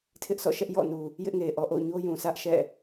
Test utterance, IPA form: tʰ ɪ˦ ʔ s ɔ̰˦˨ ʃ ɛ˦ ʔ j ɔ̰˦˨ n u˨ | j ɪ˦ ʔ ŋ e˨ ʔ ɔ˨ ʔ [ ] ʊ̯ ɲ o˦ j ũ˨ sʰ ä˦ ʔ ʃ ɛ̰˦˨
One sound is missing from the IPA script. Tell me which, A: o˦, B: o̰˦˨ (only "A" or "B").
B